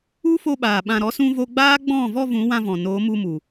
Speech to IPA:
u˦ f o˧ ɓ aː˨ ɓ ã˨ ɾ ɔ˨˦ s ũ˧ v o˧ ɡ͡b aː˦ ɡ͡b ɔ̃˦˨ v ɔ˧ v ũ˨˦ w ã˧ v ɔ̃˨ n oː˨˦ m u˧ m u˨

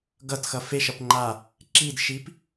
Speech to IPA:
ɡ ʌ t x ʌ f e ʃ ʌ p ŋ͡ǃ a | ǁ i d ʃ i p

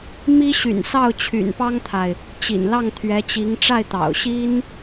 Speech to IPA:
m i˥ ɕ y̰˨˩ n s ɑ˥˩ ʊ̯ t͡ɕʰ y̰˨˩ n p ɑ˥ ŋ t̪ʰ a˨ ɪ̯ | t͡ɕ ḭ˨˩ n l ɑ˥˩ ŋ t̪ʰ ɥ ɛ˧˥ t͡ɕ i˧˥ ŋ ʈ͡ʂ a˥˩ ɪ̯ t̪ ɑ̰˨˩ ʊ̯ ɕ i˥ n

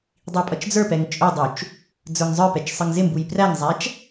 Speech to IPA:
dˤ i pʼ ʌ t͡ʃ d͡z ə˞ p ɛ ŋ t͡ʃʼ ʊ dˤ u t͡ʃ | d͡z ə˞ ŋ zˤ ə˞ p ɛ t͡ʃ sˤ ə ŋ z ɪ m b u j p r æ ŋ zˤ æ t͡ʃ

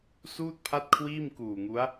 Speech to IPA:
s uː˥˩ t̚ pʰ a˥˩ t̚ kʰ w iː˥˩ m k uː˨˩ ŋ u˦˥ a̯

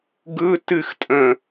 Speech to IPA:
ɡ ɯ t ɨ x tʼ ə̃

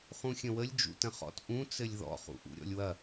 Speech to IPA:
χ ũ xʲ ə̃ w ə lʲ d͡ʒ ṵ t ə̃ χ ɔ̰ t ʔ ũ t͡s ɘ lʲ ð ɔ̰ χ ṵ ʔ ṵ ɾʲ ɔ̰ lʲ w ɐ

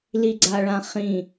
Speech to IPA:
l i ɡ͡ǀ a ɭ ã χ ĩ

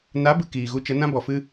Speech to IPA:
n a˨˦ b ɨ˨ k iː˨ ɣ u˧ t͡ʃ ə˨˦ n ã˦ b ɔ˨ f ɨ˦

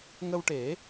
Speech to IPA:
ŋ ə˧ w ʈ e˨˩˦

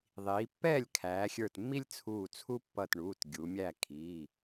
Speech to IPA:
ðˤ iː˩˧ pː ɛː˥˨ lʲ kʰ æː˩˧ xʲ ə˞˧˩ t mː i˥ lʲ t͡sʰ uː˧˩ t͡sʰ u˥ pː ʌ˧˩ t ɳ uː˩˧˩ t ɡʲ u˩˧ mʲ æ˥˨ kʰ iː˩˧˩

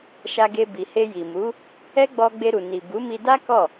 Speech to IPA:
ʃ a˧ ɡ e˧ b i˨ h e˧ j i˨ m u˨˦ | ɛ˦ ɡ͡b ɔ˧ ɡ͡b e˧ ɾ u˨ n i˨ b u˨˦ m i˧ d a˦ k ɔ˦˨

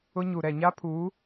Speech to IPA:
ʊ˦ ɲ u˨ ɾ ɛ˨ ɲ a˦ pʰ uː˨˦

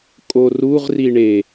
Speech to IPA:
kʼ o r u ʁ r i ɳ e

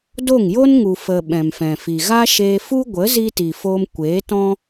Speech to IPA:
d o˦˨ ŋ j o˦ n ŋ u˨ f ə˨ ɓ ɛ̃˨ m f ɛ̃˨ f i˨ ɣ a˦ ʃ eː˧ f u˦ ɡʷ ə˨˦ z i˧ t i˨ f o˧ m kʷ eː˨˦ t ɔ̃˦

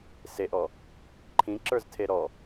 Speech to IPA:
s e ʔ ɔ | ǃʰ ĩ ǁ ə˞ z tʰ e ɾ ɔ

